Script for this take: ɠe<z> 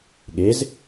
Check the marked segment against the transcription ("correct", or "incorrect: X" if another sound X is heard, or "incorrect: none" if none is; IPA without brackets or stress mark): correct